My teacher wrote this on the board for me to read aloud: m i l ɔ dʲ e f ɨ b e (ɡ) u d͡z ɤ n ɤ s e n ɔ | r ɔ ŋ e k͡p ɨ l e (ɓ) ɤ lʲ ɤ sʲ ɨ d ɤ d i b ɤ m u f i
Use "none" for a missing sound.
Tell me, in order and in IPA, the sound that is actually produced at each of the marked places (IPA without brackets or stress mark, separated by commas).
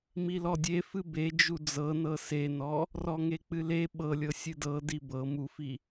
d͡ʒ, ɓ